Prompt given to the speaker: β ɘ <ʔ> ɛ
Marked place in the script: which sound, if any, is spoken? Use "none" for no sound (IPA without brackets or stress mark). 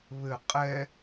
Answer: qʼ